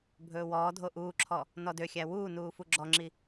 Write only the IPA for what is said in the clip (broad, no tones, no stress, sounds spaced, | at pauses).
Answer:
bʱ ɵː w ɔː dʱ o ʔ uː ǁʰ ɔ | n ɔ d ø xʲ æ w uː n uː f u ɡ͡ǁ ɔ ŋ͡ǁ i